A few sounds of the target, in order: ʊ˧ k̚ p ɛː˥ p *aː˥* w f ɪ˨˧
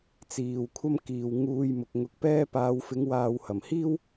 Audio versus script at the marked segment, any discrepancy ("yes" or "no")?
yes